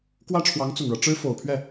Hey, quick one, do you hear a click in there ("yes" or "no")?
no